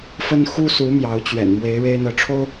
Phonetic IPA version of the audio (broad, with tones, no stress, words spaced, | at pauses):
fə˥nxu˥su˧˥ mjɑ˧˥ʊ̯t͡ɕɥɛ̰˨˩nmwe˧˥ɪ̯ ɻe˥ɪ̯n̪ɤ˧˥ʈ͡ʂʰo˥ʊ̯